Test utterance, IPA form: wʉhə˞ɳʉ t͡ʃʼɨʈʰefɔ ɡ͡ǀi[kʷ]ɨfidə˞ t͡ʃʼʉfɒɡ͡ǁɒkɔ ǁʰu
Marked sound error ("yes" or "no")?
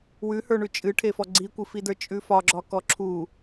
no